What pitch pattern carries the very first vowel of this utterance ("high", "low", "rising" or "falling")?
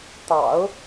low